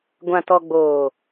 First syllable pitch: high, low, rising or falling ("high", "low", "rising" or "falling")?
low